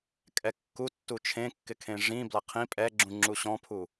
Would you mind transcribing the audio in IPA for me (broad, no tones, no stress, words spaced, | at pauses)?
kʼɛkːutːu t͡ʃʰẽkːɪkʰẽ ʐĩ blaqʰĩ pʼɛɡ͡ǁũ ŋ͡ǁuɕɔ̃pʰu